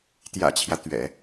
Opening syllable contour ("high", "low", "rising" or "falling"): low